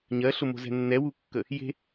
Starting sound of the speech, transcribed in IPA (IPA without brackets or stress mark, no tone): ɲ